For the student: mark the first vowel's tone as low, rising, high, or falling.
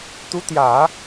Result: rising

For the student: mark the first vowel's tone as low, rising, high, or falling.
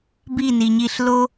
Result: falling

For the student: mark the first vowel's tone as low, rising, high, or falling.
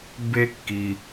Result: high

